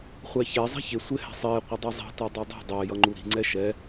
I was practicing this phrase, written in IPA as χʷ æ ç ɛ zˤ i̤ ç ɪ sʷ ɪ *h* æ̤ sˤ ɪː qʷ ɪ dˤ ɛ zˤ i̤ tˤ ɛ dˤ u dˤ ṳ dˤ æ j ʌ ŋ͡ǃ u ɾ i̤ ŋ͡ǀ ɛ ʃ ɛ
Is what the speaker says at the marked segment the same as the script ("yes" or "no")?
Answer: yes